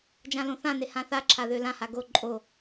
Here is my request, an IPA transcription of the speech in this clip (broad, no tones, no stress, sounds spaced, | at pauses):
d͡ʒ ã l õ θ ã n e h ã θ a ǁʰ a ð ø l ã h a ɡ o ǃʼ o